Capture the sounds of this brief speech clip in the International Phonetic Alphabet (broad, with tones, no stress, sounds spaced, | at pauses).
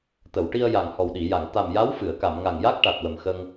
t̪ ə˨˩˨ w ʈ i˧ ə̯ j a˨˩ ŋ h ɔ˨˩ w ɗ i˨˩˨ j a˨˩˨ ŋ t̪ a˨˩ m j a˧˥ w f ɨ˨˩˨ ə̯ k a˨˩˨ m ŋ a˨˩ ŋ j a˦˥ k̚ ʈ a˨˩ t̚ w ə˨˩ m x ə˧ ŋ